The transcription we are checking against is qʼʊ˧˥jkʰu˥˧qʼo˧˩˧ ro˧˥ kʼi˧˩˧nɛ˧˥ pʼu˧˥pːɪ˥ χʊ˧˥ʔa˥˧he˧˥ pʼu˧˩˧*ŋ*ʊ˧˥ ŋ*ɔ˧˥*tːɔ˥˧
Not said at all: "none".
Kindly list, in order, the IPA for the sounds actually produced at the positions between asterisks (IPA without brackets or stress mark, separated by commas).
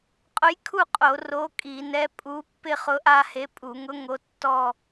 ŋ, o˧˥